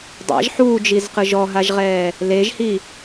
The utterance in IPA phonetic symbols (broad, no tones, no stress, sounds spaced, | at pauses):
dˤ a̰ ʒ ħ uː d͡ʒ i z q ɯ ʒ ɔ ɦ a ʒ ʁ ɛː | l e ʒ h i